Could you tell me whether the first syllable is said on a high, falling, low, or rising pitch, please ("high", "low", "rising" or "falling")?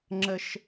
high